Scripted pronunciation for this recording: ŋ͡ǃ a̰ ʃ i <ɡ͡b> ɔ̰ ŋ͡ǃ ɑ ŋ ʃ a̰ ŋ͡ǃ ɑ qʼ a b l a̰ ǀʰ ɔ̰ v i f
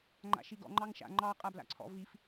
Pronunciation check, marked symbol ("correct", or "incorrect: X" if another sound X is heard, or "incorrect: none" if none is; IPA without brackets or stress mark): incorrect: ɡ